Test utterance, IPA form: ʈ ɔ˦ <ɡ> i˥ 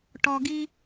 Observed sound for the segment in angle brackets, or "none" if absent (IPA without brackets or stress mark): ɡ